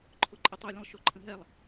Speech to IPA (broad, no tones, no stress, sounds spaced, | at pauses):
ǃʰ ʊ ǃʼ ə tˤ ʉ lʲ ə̃ lˠ ʃ o ǃʰ ə̃ ɦ ɛ lˠ